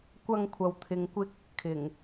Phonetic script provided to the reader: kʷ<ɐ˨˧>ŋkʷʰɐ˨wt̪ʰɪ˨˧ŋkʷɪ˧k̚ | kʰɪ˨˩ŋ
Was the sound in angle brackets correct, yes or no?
no